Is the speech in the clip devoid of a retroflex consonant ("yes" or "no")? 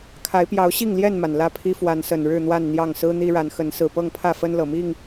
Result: no